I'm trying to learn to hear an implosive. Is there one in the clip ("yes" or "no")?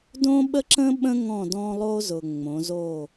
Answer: yes